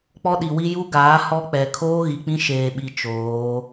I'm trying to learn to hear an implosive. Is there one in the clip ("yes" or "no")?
yes